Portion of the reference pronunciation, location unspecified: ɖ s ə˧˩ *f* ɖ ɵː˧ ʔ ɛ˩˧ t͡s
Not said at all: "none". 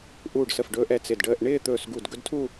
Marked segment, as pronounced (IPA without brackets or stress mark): f